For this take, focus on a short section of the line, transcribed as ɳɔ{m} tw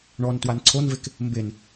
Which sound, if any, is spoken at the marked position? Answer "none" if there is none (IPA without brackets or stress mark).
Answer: n